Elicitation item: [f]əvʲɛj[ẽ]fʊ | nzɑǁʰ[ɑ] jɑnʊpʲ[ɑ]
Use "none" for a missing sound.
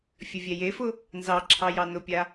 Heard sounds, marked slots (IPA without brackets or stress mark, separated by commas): fʲ, e, ɑ, a